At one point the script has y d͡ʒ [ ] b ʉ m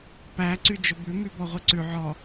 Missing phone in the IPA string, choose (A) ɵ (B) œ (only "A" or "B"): A